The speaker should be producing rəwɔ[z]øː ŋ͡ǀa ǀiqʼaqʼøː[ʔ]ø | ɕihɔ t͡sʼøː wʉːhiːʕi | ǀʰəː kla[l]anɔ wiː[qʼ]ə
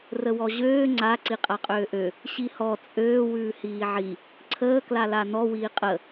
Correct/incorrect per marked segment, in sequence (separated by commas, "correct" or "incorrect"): incorrect, correct, correct, correct